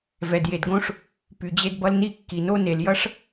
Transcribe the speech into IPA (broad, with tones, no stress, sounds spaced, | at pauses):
v ɛ˩ d j e˩ d ɡ õ˥ ʂ | p y˩ d͡ʑ e˧ d b ʌ˧ l n i˥˩ kː i˩ n o˥ n e˩ l j ʌ˥ ʂ